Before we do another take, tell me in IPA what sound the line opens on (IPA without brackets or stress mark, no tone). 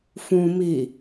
f